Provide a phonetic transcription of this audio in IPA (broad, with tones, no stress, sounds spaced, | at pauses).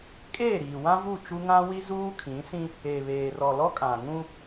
kʼ eː˦˨ ɾ iː˨ w ã˦ v u˦˨ t͡ʃ u˦ ŋ ã˦ w i˦ z uː˦ kʰ ĩ˨˦ s ĩ˦ | e˨ β eː˨ r ɔ˨ l ɔ˦ kʼ ã˨ ŋ ũ˦